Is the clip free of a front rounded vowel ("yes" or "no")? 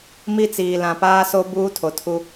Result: yes